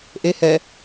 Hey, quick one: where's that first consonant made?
throat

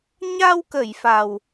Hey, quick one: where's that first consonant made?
palate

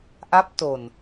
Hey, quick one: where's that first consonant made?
throat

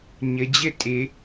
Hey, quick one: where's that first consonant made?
palate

